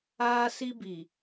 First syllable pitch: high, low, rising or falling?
high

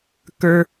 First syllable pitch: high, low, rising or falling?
high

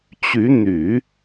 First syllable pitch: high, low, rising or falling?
rising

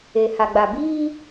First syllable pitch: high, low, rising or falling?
low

